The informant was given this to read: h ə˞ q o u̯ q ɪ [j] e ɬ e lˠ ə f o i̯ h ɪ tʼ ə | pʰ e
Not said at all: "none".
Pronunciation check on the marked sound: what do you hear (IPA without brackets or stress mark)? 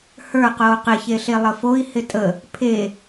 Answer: ç